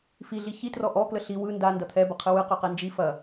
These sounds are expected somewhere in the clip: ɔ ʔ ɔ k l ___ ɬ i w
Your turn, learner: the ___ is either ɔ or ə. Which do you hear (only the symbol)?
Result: ə